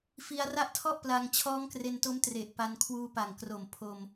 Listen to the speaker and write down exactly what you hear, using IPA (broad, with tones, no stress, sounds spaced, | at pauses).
f i˧ a̯ r a˦˥ ʔ tʰ ɔ˥˩ ʔ p l a˧ ŋ t͡ɕʰ ɔː˦˥ ŋ k r e˧ n t o˦˥ m t r e˨˩ ʔ p a˧ n kʰ w uː˧ p a˨˩ ŋ k r o˨˩ m pʰ o˧ m